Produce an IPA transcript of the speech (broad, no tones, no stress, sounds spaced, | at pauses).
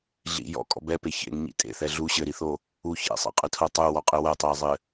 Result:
ɮ ḭ j ɔ̰ kʼ ɔ̰ b ɛ p e ç ḛ ŋ ɲ ḭ tʼ ḛ θ ɛ ɮ u ɕ ɘ ɾ i θ o | u ç ɛ̰ sˤ ḛ qʼ ɨ tʰ o tˤ u w ɔ qʼ ɨ w ɐ tˤ ɛ ɪ̯ zˤ ɘ